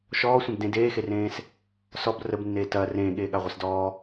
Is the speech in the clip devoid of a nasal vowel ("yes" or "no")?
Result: no